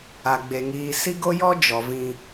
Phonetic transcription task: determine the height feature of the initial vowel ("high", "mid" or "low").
low